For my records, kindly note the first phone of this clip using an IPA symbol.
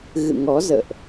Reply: ɣ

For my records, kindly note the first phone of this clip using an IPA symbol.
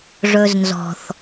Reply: ʐ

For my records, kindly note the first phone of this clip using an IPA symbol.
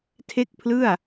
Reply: tʰ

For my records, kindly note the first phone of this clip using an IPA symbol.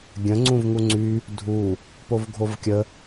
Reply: ɡʲ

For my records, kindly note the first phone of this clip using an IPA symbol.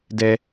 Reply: d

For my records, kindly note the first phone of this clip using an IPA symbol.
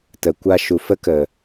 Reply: t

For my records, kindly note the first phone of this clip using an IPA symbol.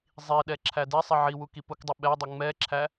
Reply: zˤ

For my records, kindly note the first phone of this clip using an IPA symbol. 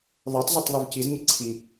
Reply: ðˤ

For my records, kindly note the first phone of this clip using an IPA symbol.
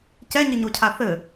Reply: c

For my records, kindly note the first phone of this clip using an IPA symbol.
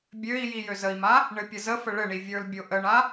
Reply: bʲ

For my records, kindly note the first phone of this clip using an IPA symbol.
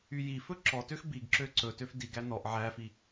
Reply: y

